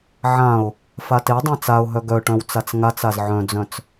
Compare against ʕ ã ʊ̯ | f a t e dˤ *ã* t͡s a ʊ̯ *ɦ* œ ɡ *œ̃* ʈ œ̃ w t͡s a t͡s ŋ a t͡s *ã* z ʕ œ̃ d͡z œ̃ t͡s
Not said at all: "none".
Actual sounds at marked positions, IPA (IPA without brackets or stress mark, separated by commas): ã, ɦ, œ, a